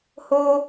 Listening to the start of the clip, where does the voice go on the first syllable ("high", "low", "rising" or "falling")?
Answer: high